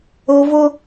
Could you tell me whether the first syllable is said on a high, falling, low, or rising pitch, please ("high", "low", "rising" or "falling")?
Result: high